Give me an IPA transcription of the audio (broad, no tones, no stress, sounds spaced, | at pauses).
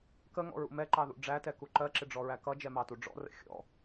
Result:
k ə ŋ ɔ̰ ɹ ṵ m ɛ ǃ ɑ ð ṵ ɖ͡ʐ æ t ɛ k u ǃ ɜ ǁ ɪ ɖ͡ʐ ɔ ɹ æ k ʌ d͡ʒ ɛ m ɑ t u ɖ͡ʐ ɔ̰ r ə̰ xʲ ɔ̰